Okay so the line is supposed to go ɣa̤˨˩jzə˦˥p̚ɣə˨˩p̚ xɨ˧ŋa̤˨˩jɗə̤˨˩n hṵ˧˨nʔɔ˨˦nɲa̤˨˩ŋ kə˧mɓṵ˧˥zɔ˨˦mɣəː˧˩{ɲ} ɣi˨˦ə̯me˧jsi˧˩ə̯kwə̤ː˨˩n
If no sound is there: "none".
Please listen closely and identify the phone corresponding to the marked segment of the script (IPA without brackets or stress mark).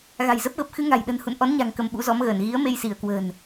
n